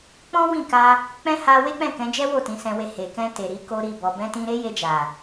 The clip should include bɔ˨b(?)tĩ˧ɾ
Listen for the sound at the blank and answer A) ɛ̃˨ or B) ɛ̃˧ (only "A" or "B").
B